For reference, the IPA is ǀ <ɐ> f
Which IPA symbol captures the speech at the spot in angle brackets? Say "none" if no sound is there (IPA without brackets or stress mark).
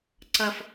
ɐ